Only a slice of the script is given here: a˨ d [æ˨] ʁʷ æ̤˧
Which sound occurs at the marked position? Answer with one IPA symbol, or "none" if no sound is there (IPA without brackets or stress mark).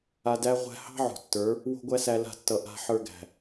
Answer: æ˧